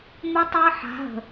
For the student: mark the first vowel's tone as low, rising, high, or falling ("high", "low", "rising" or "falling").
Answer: high